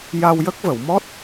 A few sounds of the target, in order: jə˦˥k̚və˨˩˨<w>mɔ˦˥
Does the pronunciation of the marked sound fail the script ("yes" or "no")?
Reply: no